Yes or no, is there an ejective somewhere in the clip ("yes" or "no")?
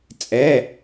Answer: yes